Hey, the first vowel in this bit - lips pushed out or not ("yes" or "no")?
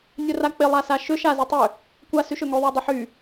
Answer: yes